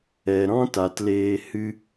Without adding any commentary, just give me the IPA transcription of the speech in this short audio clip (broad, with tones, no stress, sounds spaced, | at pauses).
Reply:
ɛ˨ ɾ ɔ̃˦ t a˨ t l eː˧ h ɨ˦